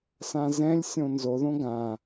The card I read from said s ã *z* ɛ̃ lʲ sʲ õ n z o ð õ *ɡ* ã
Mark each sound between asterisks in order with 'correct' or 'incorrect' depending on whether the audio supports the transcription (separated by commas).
correct, correct